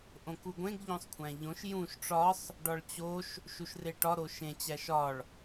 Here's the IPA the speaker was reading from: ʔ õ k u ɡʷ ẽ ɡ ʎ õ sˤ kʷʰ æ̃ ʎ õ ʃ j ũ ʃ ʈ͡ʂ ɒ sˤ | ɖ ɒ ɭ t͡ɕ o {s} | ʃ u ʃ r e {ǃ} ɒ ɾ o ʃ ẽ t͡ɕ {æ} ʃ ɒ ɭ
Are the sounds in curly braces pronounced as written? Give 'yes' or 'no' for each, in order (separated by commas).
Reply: no, no, yes